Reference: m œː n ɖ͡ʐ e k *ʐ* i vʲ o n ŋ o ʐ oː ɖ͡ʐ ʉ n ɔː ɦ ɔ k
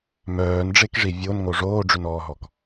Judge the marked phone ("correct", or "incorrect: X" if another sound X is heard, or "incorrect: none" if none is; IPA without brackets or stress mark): correct